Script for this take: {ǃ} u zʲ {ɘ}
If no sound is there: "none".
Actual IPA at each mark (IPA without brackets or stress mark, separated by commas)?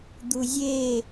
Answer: d̪, e